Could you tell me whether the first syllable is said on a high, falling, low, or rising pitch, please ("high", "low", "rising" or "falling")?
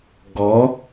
rising